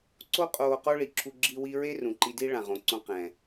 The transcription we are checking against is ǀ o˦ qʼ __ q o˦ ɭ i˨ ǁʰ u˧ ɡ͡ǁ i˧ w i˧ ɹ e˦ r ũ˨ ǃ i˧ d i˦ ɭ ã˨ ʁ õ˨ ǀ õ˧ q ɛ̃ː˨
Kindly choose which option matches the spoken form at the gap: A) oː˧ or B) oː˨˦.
A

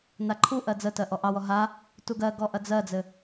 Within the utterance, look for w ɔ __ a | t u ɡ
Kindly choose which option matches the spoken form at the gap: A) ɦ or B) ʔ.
A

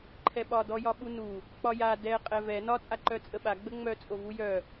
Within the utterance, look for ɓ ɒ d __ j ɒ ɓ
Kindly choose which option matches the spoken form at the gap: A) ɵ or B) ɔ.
B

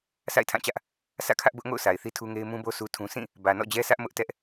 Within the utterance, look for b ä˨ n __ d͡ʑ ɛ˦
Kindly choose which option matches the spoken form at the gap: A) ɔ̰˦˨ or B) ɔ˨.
A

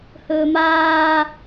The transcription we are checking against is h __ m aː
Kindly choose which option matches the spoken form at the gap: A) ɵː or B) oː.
A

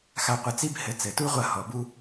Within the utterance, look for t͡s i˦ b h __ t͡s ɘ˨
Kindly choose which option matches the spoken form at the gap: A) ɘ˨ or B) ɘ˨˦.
B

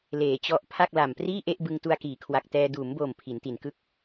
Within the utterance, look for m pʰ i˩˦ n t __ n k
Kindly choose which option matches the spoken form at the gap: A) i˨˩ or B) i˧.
A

